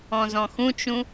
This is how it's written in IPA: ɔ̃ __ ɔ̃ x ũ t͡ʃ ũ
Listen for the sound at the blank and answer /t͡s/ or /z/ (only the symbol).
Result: z